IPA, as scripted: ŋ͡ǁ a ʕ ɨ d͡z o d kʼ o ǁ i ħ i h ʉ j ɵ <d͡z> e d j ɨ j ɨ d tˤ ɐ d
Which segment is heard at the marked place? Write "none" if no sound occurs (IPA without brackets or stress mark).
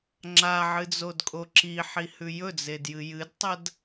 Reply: d͡z